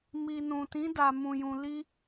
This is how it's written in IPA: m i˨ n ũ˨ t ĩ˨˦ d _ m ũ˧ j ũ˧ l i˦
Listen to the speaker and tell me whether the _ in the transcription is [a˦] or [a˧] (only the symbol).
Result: a˧